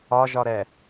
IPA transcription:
ɒ ʒ ɒ ɾ ɛ

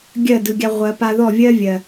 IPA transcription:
ɡʲ ɜ˦˨ d ɯ˨ ɡʲ a˧ ʁʷ ɜ˨ p a˧ ð ɔ˦˨ vʲ ɜ˦ vʲ ɜ˨

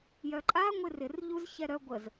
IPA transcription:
j œ ǃʼ a ŋʷ ɪ r ɪ r ʎ u z ç ɛ ɾ œ ɡʷ ə z

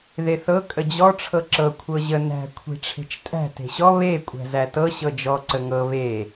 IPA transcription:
ð e θ ɤ kʼ ə d͡ʑ ɔ ʈ͡ʂʰ ɤ ǁ ɤ kʷʰ ɤ ʑ ə n æ̤ kʷʰ e̤ ʈ͡ʂʰ e̤ t͡ʃ tʼ æ̤ t e̤ ɕ ɔ β e kʷʼ æ̤ z æ t ɤ ɕ ɤ d͡ʒ ɔ ǀ ə ŋ ɤ β e

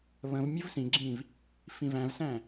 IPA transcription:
β ə̃ v mʲ ʊ v s ĩ ɡ͡ǁ ĩː v | f ĩ v æ̃ v s æ̃ː

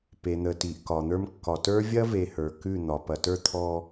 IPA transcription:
p e˨ n̪ ə˨ t i˨ ʔ k ɒ˨ n̪ ə˞˦ m kː ɒ˨ t ə˞˦ vʲ ɐ˦ v e˨ h ə˞˨ k ʉ˦˨ n̪ ɒ˨ p ɐ˨ t ə˞˦ t̪ʰ ɔ˦

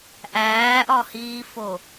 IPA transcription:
ʔ æː ʔ ɒ h iː f o

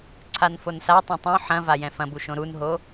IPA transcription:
ǀʰ a n f o n s a tˤ õ tˤ õ ħ ɐ̃ v a j ɛ̃ f ɐ̃ b u ʃ õ ɾ u n ɦ o

